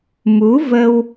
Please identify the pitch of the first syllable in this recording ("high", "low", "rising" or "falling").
rising